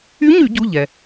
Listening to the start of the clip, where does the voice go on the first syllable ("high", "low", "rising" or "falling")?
rising